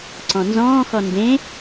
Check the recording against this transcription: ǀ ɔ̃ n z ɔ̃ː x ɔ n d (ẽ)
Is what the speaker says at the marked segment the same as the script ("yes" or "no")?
yes